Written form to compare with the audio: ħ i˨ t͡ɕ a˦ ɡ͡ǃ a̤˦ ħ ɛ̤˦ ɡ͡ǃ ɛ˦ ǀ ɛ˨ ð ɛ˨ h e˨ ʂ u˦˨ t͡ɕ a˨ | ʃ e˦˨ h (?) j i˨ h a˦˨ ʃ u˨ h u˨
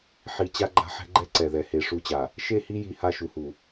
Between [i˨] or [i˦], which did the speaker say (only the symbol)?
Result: i˦